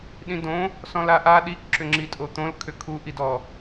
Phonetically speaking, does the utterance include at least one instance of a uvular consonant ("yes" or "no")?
no